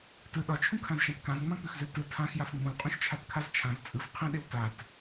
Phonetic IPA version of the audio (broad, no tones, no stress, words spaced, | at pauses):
tɯ ɗɒt͡ʃʰũkʰãzʃãt kãzŋ͡mãk͡pʉxzʉl tɯ tʰãxjaf ŋ͡mũlqʼũʃt͡ʃʰatkʰaz t͡ʃʰãz t͡sʼɯf qʰẽɗew tat